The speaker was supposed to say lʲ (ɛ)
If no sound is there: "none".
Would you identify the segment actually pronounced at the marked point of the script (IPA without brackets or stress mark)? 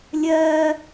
ɜ